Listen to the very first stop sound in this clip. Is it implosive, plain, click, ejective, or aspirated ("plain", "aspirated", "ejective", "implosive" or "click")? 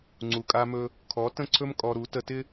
click